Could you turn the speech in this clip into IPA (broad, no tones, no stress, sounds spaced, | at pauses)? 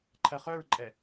ǃʰ ɜ χ œ ɹ ǃʼ ɛ